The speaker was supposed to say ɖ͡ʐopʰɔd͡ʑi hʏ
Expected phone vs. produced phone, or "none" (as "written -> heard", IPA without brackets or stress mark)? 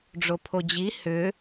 ɔ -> o